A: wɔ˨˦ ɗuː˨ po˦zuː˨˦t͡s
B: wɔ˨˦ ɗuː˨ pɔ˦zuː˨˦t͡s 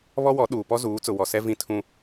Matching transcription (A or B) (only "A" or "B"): B